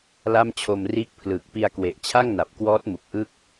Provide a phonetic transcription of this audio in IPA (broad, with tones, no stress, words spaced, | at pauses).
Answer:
la˥˩mt͡ɕʰo˧mriː˥˩k̚ pʰlɯː˨˩k̚pi˧a̯ kwe˨˩ʔt͡ɕʰa˥˩ŋ na˨˩p̚kwɔː˦˥t̚mu˨˩k̚ ʔɯ˥˩k̚